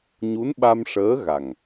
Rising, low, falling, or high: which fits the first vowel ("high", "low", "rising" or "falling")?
rising